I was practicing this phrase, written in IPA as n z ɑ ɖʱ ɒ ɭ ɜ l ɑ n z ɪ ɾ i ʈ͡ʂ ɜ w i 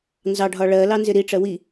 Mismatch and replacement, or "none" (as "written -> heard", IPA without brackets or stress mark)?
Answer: none